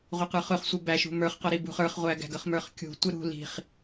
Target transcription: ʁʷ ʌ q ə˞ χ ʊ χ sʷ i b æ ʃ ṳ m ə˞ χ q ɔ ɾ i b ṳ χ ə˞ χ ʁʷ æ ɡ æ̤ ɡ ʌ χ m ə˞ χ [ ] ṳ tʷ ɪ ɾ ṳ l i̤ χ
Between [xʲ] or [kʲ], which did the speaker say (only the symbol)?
kʲ